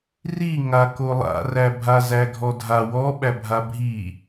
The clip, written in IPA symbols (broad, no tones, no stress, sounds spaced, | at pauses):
r i ŋ a k o lˠ a̰ r æ bʱ a z æ ɡʱ ɔ dʱ a w ɔ ɓ æ bʱ a bʱ i